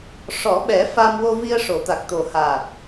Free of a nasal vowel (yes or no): yes